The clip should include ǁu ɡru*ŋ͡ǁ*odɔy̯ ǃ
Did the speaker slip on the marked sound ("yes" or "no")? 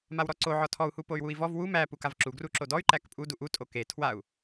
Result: yes